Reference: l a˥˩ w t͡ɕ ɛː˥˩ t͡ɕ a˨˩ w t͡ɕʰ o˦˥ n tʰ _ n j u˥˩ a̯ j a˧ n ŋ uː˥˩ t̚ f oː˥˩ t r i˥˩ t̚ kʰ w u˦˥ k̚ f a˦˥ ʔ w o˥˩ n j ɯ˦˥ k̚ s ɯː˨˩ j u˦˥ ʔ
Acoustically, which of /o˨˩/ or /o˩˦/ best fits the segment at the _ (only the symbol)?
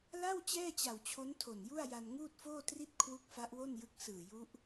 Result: o˨˩